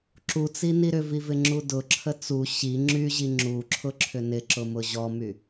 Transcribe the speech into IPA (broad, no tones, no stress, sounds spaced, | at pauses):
ǁ u t͡s i n i ɾ ʏ v i v ɪ ŋ͡ǁ u d ʊ ǁʰ ə t͡s u ɕ i ŋ͡ǁ y ʑ i ŋ͡ǁ u ǁʰ ʊ ǁʰ ʏ n ɪ ǁ ʊ m ʊ ʑ ɔ m y